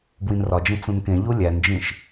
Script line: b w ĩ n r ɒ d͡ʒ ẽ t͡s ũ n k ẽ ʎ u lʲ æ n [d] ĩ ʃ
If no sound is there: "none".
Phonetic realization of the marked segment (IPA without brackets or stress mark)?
d͡ʒ